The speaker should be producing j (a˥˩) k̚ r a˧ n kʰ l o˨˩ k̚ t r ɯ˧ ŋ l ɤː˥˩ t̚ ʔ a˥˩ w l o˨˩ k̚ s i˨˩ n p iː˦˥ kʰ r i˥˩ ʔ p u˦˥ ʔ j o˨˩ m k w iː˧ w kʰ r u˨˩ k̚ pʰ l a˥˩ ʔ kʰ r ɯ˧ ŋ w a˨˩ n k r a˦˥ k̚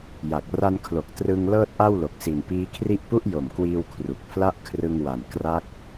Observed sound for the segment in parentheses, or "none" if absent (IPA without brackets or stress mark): a˨˩